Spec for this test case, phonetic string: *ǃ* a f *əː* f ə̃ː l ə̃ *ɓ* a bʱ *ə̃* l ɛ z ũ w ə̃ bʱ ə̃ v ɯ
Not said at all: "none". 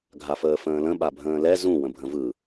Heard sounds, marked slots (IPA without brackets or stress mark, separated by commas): ɡʱ, əː, ɓ, ə̃ː